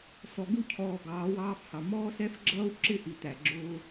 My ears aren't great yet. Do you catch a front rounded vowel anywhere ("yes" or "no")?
no